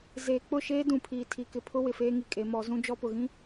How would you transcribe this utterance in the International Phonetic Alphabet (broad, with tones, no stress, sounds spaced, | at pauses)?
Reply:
z eː˨ k͡p ʊ˦˨ ʃ eː˦ d ũ˨ pʰ iː˨ tʰ i˨ k ɪ˨ pʰ ʊ˦ w ɪ˨ f eː˦ ŋ i˨ kʼ e˨˦ m ɔ˨˦ z ũ˦ d͡ʒ ɔ˦ p ʊ˨ ɣ ĩ˦